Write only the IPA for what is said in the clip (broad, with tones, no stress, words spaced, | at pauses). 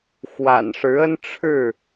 xwa̰˨˩nʂɻ̩˨˦ə˦n ʈ͡ʂʰɻ̩˥˨